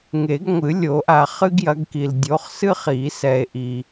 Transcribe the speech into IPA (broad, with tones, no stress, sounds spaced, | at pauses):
ŋ e˨˩˦ ɡ ŋʷ ɨ˨˩˦ lʲ o˨˩˦ ʔ a˨ χ ɨ˥ ɡ j ɐ˨˦ ɡ k i˨ l dʲ o˨˦ χ s ɨ˥ χ i˨˩˦ s ɛ˨ e̯ ʔ i˨